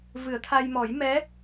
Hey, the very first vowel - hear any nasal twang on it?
no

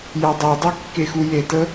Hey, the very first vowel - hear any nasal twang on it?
no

